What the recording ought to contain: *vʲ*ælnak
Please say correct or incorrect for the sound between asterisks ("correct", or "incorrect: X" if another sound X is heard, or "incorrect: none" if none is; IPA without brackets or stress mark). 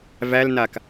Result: incorrect: v